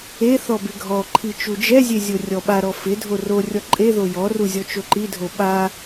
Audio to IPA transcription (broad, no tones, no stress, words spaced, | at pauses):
e θɔbɪɡʱɔǃʰi t͡ʃud͡ʒɛzʲe zʲorʲɔɓaɾɔ fɪdʱo rorʲɔ ǃʼe ðojɔru zʲɔt͡ʃoǃidʱo ɓa